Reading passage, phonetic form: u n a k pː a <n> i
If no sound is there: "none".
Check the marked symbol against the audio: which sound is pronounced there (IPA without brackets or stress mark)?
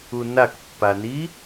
n